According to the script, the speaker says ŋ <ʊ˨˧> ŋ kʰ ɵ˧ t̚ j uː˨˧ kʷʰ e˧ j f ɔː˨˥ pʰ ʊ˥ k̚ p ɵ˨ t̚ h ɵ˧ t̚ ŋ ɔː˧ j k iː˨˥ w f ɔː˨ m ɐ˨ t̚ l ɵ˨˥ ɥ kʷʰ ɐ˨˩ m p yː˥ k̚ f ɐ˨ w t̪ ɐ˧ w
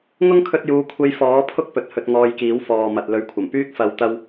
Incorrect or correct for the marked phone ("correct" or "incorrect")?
incorrect